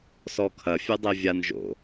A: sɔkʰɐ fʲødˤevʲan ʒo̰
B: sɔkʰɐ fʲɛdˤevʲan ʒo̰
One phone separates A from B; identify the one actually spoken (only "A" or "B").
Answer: A